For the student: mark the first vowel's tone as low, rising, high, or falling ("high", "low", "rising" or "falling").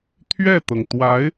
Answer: falling